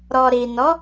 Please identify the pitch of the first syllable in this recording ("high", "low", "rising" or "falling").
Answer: low